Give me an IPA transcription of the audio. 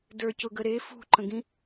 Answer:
d ə˞ c ʊ ɡ ə ɾ e f ṳ ǃ ə̃ ɡ ĩ

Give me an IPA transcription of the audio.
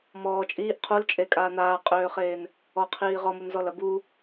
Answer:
m ɔː t͡ʃʼ iː ʔ qʰ u l t͡ʃʼ e kʼ aː n̪ aː qʼ øː χ eː n | ɔ qʰ iː ʁ ɔ m u n z ɔ l ɐ b u

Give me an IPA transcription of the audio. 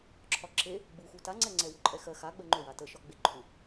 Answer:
ǁʰ ɒ ǁ e | ɡ͡b u x u t a ŋ͡ǀ ɛ ŋ͡ǀ ɛ w ʏ ǃʼ ɛ x ɜ x a ɡ͡b ɜ ŋ͡ǃ ʏ w a t ə ʃ ɒ ɡ͡b e ǃʰ u

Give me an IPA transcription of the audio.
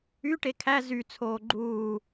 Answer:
y ʈ e kʰ æ z y t͡sʰ oː ɡ͡ǃ uː

